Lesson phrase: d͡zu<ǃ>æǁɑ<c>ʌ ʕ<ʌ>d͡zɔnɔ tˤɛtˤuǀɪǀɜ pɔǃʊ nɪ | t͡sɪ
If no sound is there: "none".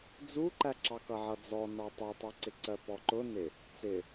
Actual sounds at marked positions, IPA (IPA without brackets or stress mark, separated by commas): ǃ, k, ʌ